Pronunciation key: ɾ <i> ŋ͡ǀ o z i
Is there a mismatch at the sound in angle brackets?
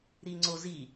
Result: no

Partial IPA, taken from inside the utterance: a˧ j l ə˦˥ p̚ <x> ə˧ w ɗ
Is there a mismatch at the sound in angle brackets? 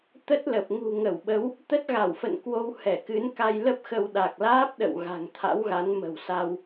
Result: no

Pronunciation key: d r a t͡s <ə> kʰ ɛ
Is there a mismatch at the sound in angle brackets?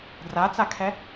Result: yes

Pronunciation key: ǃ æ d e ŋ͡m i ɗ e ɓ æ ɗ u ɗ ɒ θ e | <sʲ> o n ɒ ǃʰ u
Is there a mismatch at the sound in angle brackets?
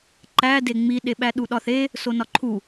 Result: yes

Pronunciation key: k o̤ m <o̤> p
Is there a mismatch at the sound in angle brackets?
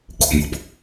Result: no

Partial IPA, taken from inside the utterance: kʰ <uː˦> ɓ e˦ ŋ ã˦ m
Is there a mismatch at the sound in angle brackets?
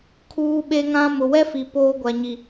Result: no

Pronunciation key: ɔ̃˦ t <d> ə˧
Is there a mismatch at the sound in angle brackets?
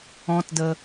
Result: no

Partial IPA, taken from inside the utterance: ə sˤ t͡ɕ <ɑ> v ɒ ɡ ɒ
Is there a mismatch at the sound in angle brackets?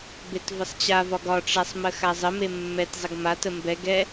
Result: yes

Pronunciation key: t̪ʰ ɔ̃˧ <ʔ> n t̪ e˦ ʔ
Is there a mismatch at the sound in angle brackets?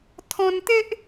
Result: yes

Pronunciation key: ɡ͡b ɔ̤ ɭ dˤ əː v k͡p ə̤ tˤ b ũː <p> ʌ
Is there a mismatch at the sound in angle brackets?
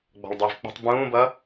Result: yes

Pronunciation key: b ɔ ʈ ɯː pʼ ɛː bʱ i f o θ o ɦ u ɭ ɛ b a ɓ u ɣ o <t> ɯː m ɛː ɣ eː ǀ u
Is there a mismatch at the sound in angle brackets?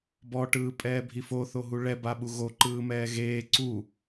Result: yes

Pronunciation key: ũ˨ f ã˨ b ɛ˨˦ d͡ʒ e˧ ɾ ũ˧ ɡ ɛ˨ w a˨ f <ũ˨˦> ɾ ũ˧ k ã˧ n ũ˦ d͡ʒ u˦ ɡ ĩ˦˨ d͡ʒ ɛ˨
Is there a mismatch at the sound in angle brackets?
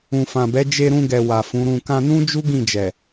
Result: no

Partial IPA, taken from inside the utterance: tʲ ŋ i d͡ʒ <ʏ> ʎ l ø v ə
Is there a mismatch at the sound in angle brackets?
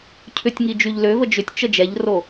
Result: yes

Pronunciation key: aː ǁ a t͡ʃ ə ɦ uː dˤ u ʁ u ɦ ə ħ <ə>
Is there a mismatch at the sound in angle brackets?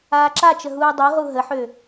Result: yes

